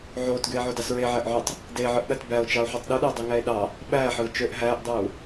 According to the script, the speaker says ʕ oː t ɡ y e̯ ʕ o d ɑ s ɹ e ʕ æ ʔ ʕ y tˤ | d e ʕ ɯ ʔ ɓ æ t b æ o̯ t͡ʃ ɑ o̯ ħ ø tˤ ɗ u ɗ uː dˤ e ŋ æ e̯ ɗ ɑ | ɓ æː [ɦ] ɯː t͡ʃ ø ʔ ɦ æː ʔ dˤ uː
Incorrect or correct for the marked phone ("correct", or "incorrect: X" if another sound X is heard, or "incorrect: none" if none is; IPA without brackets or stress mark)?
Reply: incorrect: ħ